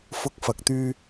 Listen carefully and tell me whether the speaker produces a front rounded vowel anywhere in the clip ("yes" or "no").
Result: yes